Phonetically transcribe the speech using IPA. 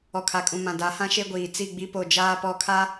ɔ˨kʰa˨kʼũ˨ mã˨ da˨˦hã˦ʃe˦ɡʷiː˨ t͡si˦˨ɡ͡bi˦po˦˨ d͡ʒaː˦pɔ˦˨kʰa˦

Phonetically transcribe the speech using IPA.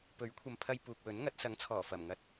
pɵ˨˥ɥkʷʰɐ˨mpʰɐ˧j puː˨k̚wɵ˨˥nŋɐ˨˥t̚ sɐ˨˥ŋt͡sʰɔː˨˩fɐ˨˩mŋɐ˨˥t̚

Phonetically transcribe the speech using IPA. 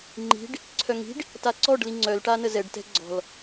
ŋ͡ǃi̤ɖ | ǀʰœŋi̤ɖ | taǀɔɖli ŋ͡ǀœlʈa nəzɛɖtɛ̤ ɡ͡ǀɔ̤l

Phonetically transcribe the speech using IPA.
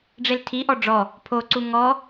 ɖ͡ʐeltʰiʔɔ ɖ͡ʐɔ | pʰoǀu ŋɔ

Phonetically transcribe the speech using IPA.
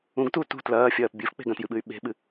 ũɡtu tṳ tlɐːfʲɐːp bʲɨfk͡pe̤ ɡɐ̃tjɨɓɨy̯ ɓe̤ɓɨ

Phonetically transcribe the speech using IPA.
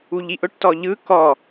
uʎiʔʊʈ tɔʎɯ kɔ

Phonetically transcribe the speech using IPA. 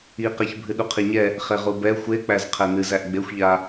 iqɛç bʱɨɗuqʰiɲɛ | χeʁubɛ xʷe k͡pæzqʰɛnɨzæʔ ɡ͡bexʷʎa

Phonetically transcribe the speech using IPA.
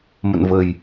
mə̰˧˨nvə˨˩j

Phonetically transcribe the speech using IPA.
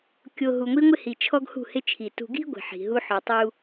kʲo˨ ɦu˨ŋʷi˦ŋʷɪ˦hi˨ t͡ʃʰɔ˦ɡhṳ˦˨hɪ˦t͡ʃʰi˨ tṳ˨ɡi̤˦ ɡʷi̤˨ħi̤˨ɦu˦ ħɔ˨tˤu˦

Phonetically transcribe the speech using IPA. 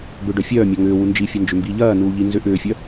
bʏɖœ fʲœːmʲɒ ŋʏː wund͡ʒifʲɐ nd͡ʒʏmbiːʎɐːnuː ʎinzʏʔʏːfʲœ

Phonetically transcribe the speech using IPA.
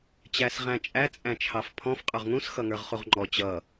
t͡ɕæsʁæ̃t͡ʃʼæ t͡sʼæ̃t͡ʃʰɑfpʰɔ̃f qʼə˞ʁŋũs xʌŋə˞ʁχuʁŋ͡ǃɔ t͡ɕʌ

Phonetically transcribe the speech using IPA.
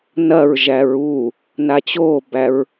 nɐɹ ʒæɹu | nat͡ɕobæɹ

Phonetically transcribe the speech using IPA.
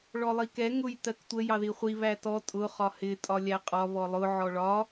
ɭɔlˠikɛ ŋʊj tɜktʷə jɑðiχʷi βætɔ tʼʊ χɒhɪ tʼɒlʲæqʼɒ βɔlˠʊ ʕɔɭɒ

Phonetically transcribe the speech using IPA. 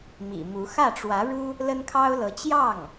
mḭ˨˩mu˧˥ xä˥˩ʈ͡ʂwä˧˥ɻu˥ | lə˥nkʰɑ˥ʊ̯lɤ˧˥ t͡ɕjɑ˥˩ŋ

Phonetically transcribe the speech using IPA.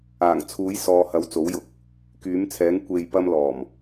aː˨˩ŋt͡sʰuː˨˥jsɔː˨˧ hɐ˨˧wt͡so˨˥wjʊ˨˥k̚ | kyː˨˥mt͡sʰɛː˨˥ŋ kʷe˨j pɐ˥mlɔː˨˩m

